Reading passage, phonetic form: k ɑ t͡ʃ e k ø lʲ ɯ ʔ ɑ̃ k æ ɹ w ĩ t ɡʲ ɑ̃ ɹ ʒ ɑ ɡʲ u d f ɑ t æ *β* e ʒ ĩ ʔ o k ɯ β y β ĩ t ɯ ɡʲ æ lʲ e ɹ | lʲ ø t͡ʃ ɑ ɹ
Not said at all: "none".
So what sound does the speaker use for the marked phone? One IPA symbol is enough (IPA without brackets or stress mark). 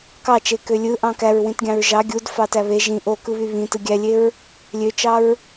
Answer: β